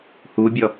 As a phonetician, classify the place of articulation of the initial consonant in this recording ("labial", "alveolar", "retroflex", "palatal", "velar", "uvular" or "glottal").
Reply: glottal